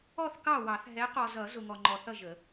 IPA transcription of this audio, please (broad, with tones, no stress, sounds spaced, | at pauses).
ɔ˥˩ θ k ɑ˥˩ w ɑ˨˩˦ θ ɦ ɛ˨˦ q ɔ˨ z ʌ˨˩˦ z ʊ˨ ŋ ɔ˨ ŋ͡ǃ ɔ˨ θ ʌ˥˩ ʒ ə˨˩˦